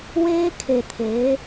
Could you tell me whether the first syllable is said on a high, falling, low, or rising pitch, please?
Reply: high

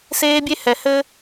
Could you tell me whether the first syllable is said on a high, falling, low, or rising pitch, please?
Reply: high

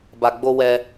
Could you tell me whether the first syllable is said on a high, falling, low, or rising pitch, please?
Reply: low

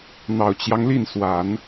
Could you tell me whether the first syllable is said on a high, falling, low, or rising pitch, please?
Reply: low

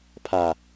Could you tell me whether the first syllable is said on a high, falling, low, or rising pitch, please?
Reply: low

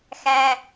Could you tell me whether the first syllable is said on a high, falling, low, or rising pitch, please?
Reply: high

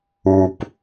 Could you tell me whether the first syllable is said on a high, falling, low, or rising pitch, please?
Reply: low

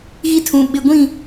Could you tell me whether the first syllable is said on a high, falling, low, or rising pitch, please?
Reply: high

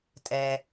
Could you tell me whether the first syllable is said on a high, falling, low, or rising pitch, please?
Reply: low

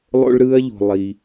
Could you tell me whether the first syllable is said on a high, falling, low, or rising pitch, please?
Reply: high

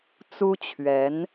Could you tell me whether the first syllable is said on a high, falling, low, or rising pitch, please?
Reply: high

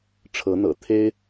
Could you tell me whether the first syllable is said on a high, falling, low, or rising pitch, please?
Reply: rising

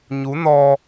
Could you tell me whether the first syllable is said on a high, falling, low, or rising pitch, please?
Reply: rising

